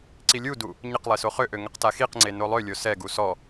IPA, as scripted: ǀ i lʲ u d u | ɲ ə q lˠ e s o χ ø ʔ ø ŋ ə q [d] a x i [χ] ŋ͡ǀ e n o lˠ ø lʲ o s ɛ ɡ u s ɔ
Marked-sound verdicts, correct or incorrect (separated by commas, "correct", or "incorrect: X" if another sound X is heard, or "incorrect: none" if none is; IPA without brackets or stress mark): incorrect: t, incorrect: q